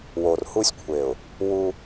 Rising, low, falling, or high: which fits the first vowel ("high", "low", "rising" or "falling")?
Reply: low